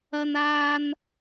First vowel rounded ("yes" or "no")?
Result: no